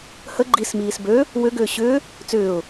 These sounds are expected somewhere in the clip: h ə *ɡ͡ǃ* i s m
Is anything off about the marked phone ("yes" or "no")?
no